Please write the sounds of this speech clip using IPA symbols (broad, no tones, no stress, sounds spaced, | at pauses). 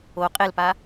o qʼ e l p a